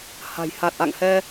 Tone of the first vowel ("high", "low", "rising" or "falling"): low